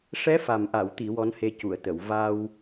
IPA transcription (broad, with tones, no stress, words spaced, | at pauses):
ʂɛ˧˥fa˨˩mʔa˨˩˨wt̪i˨˩˨ wɔ˧˥nhe˧cu˨˩˨ə̯t̪ə˨˩˨w va˧w